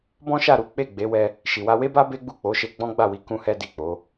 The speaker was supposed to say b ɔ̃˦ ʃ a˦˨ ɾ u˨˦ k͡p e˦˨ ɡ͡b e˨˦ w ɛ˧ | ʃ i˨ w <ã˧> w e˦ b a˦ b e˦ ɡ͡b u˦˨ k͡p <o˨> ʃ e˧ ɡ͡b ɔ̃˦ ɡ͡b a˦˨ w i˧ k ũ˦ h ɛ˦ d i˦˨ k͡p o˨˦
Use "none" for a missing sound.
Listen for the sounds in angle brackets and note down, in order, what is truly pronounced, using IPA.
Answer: a˧, o˨˦

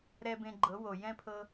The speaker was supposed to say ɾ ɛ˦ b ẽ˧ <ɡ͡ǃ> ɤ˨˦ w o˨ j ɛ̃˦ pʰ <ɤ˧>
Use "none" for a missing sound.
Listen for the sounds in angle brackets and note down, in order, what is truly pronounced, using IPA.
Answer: ɡ͡ǃ, ɤ˧

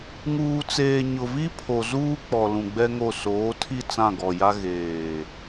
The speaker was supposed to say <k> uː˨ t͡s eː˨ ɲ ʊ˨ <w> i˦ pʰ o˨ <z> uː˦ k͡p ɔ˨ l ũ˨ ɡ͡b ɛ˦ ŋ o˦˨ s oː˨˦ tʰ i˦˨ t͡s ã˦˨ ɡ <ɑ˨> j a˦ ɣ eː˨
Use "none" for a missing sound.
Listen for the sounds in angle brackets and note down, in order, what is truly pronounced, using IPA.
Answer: ŋ, v, z, ɔ˨

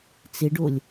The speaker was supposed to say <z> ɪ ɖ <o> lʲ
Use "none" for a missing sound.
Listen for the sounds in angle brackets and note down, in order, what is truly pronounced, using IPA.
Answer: t͡s, o

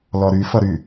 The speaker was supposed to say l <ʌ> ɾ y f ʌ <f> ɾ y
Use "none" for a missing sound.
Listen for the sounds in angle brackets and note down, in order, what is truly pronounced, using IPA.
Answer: ɔ, none

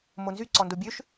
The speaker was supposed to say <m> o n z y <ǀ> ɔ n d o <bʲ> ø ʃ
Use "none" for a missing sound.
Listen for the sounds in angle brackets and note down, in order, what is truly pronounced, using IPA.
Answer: m, ǀ, bʲ

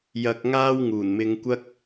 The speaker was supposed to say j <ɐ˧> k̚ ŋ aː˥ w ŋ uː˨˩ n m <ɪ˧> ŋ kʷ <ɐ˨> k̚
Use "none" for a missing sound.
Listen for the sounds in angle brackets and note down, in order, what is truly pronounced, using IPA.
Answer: ɐ˧, ɪ˧, ɐ˥

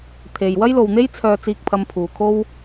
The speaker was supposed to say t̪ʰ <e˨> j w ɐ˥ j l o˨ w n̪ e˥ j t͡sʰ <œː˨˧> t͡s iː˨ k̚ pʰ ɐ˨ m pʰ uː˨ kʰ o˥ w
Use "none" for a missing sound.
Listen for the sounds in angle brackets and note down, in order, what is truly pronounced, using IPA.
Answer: e˨, œː˨

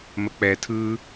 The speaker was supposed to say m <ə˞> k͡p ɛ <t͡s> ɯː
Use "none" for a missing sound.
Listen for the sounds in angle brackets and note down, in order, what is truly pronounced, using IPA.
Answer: ə, tʰ

